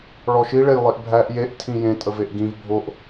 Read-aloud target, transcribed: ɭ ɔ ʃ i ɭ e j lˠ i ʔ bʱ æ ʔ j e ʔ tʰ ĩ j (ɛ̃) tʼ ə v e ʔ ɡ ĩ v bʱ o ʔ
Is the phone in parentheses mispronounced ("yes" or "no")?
yes